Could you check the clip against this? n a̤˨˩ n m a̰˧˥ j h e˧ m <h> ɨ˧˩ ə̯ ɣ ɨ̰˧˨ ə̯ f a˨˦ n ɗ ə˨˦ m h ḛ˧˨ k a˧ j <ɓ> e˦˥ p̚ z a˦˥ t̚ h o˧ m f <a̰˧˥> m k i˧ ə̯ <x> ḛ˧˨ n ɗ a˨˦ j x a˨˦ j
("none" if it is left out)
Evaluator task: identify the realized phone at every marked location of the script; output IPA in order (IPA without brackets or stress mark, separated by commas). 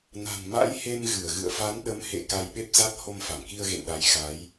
ɣ, ɓ, a˧˩, ɣ